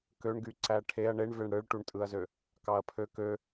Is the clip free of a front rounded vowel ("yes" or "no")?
no